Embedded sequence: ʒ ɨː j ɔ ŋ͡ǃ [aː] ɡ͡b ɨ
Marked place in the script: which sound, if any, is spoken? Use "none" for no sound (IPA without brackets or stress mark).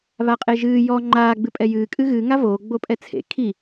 aː